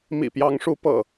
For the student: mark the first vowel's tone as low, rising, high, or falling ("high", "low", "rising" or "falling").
low